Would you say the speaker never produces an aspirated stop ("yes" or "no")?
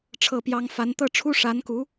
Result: no